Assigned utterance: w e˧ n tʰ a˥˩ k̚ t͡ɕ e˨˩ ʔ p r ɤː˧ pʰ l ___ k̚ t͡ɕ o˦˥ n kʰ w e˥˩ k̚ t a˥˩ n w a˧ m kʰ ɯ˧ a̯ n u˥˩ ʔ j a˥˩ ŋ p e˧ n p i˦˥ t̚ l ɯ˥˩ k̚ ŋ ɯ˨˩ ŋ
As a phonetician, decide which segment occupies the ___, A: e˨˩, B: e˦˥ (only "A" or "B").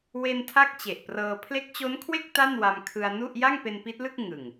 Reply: B